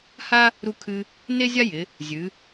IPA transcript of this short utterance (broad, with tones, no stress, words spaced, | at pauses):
ha˦ | ɾu˦kʰɨ˦ | ne˦zʲa˦jɪ˩˧ | zʲɨ˩˧